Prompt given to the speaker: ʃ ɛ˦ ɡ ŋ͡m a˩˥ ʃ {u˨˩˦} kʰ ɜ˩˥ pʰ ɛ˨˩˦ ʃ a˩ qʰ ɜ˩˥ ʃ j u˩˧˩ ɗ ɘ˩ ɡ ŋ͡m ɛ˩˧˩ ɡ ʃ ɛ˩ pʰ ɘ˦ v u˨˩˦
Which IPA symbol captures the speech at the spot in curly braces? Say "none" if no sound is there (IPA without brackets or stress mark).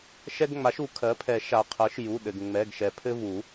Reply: u˨˩˦